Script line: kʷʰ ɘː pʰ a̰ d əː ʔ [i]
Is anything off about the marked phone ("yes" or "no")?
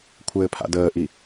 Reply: no